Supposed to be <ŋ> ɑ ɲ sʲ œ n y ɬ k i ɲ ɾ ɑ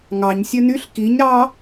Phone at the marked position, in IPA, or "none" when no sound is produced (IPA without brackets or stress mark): ŋ